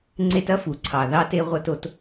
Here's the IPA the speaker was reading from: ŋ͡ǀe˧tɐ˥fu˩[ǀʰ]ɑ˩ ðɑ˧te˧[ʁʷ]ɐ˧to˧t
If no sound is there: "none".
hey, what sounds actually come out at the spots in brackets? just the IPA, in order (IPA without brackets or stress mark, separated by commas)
ǀʰ, ʁʷ